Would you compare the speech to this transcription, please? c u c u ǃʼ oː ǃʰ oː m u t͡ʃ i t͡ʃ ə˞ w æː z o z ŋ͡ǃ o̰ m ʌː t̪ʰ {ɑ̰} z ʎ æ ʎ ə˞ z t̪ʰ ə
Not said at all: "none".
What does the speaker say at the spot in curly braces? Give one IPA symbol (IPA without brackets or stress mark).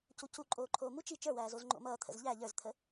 ə̰